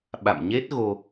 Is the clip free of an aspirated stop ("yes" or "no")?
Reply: yes